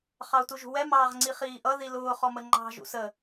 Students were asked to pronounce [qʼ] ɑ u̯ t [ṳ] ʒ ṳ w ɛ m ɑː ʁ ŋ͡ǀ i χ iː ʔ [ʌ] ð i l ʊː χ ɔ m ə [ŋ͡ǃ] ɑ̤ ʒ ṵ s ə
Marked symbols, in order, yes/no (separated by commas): no, no, yes, yes